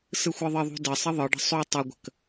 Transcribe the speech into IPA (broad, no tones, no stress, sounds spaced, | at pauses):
s ɯ xʷ ɯ ðˤ ə ðˤ ṳ d ə sˤ ə ðˤ ɯ ɖ ə̤ sˤ u tˤ ə ɡʷ ə̤ k